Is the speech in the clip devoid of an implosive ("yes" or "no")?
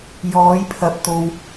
yes